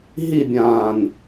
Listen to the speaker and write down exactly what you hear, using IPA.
ɦ i bʲ ãː n

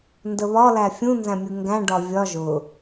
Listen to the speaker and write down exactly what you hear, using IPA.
n d ə β ɒ l æ fʲ ũ n z æ̃ mʲ u ŋ ɡ æ̃ ɖ ɒ vʲ ɒ ʒ ʊ

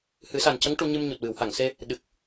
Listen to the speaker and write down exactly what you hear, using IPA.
h ɨ˨˩˦ s a˨˩ n c ə˧˥ ŋ ʈ u˧ ɲ ɨ˧ m ɲ u˨˩ t̚ w ɨ˨˩˨ w h a˨˩˨ ŋ s e˧ | ɗ ɨ˨˩ k̚

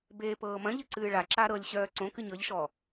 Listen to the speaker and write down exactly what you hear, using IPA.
b eː p ɤː m ɐ̃ ʎ ɨ ǀ ɨː ɭ a ǁ a ɾ ɤ lʲ ɕ œː ǀ õ k ɨ ɲ ɤ ʎ ʃ ɔ

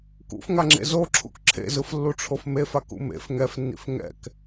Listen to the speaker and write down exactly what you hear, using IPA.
k ṵ f ŋ a ŋ͡ǁ ḛ z o ǁʰ ṵ k ǁʰ ḛ z ɯ f lː u ʈ͡ʂʰ o f m e f a k ṵ m ḛ f ŋ ɛ f nː ḭ f ŋ ɛ̰ k

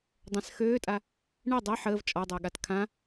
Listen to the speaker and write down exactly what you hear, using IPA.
dˤ ɛ̃ s x øː tʼ a | ɳ ɛ dˤ ɛ ħ əː v t͡ʃʼ ɔ dˤ əː ɠ a t kʰ ã

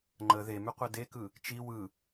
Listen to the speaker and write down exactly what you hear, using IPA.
ŋ͡ǃ ə ð e m ʉ qʷ e d e k ɯ | t͡ʃ i w ɯ

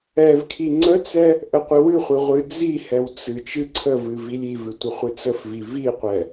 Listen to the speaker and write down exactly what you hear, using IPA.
ɛ v kʰ i ŋ͡ǀ ə t͡s ɛ | ʔ ə qʷ ɨ w ɨ χʷ i ʁʷ ɨ d͡z i h ɛ w t͡s ɨ t͡ʃ ɨ ǀʰ ə v ɨ v i lʲ i v ɨ tʷ ə χʷ ɨ t͡s ə f v i v i qʷ ɛ

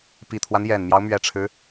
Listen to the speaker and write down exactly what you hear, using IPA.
p i˨˩ t̪ʰ w a˦ n j ɛ˨˩ n m j ɑ˦ ʊ̯ m ɥ ɛ˨˩ ʈ͡ʂʰ ɻ̩˦

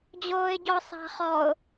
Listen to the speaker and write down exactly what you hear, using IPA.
d͡ʑ oː ɪ̯ ɟ ɔ sˤ a̤ χ ɔ ʊ̯

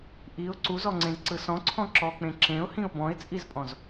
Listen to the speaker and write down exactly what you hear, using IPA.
ʔ i ʊ̯ ǀ u z ɔ ŋ͡ǀ ẽ z ǀ ɯ s ɔ̃ ǀʰ ɔ̃ ǁ ɔ k͡p ẽ ǁ ẽ ʊ̯ h ĩ ʊ̯ b ɔ̃ ɪ̯ t͡sʼ i z pʼ ɔ̃ z

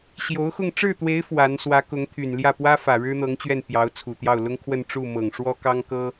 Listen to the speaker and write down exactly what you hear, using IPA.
ɕ j o˧˥ ʊ̯ x ʊ˥˧ ŋ ʈ͡ʂ ɻ̩˥˩ t̪ w e˧˥ ɪ̯ f w a˧˥ n s w ä˧˥ k ʊ˧˥ ŋ t̪ʰ y˨˩ n l j ä˥˩ p w ä˥ f ä˨˩ ɻ ɻ̩˥ n̪ ɤ˧˥ ŋ t͡ɕ ɥ ɛ˥˩ n p j ɑ˧˥ ʊ̯ t͡sʰ u˨˩ t̪ j ɑ˥˩ ʊ̯ l ʊ˥ ŋ kʰ w ə˥˧ n ʈ͡ʂ u˥˩ m ɤ˨˩ ŋ ʂ w ɔ˥ k ɑ˥ ŋ k ɤ˥

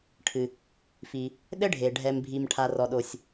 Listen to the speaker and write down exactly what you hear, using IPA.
ʈʰ ɨ˩ | f i˩ | ɗ ɘ˥ ɖʱ e˩ ɖʱ ɛ˩ m bʱ i˩ m ʈʰ a˩ r ɔ˩ ɗ o˩ sʲ

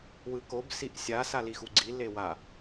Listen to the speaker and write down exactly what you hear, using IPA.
w ɯ k o b s i ʔ sʲ a s a l i x u ɡ͡ǀ i l e w a

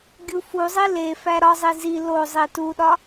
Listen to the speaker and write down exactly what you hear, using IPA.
ɡʲ u f u zˤ i l e f æ ɾ ɒ zˤ i z i l o zˤ i t u ɗ ɒ

